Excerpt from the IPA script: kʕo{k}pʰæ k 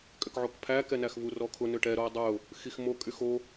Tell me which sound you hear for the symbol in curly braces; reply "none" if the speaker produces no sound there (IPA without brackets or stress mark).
k